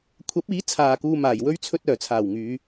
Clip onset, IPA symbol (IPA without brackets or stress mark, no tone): kʷʰ